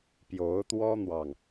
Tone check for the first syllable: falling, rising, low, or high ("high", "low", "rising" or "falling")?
rising